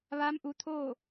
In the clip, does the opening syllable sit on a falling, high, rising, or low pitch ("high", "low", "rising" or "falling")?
rising